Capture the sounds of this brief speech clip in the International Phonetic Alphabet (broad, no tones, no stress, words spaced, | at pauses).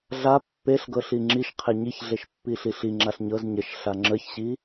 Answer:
ɮa pːeɬɡɤɬi ŋ͡ǁiʃqʰe ɲiçɮeʃpːiɬi ɬiŋ͡ǁaɬ ɲɤz ɲəʃ ɬaŋ͡ǁəçɕi